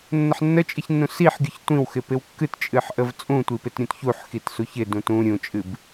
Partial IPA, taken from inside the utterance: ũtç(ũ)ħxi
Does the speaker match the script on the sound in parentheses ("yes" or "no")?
no